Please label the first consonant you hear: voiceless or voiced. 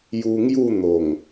voiced